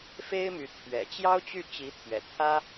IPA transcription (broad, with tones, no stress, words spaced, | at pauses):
fe˥ɪ̯my˧˥ t̪ʰɥɛ̰˨˩ t͡ɕjɑ˥ʊ̯t͡ɕy˥˩ t͡ɕi˧˥t̪ʰɥɛ̰˨˩ t̪ʰä˥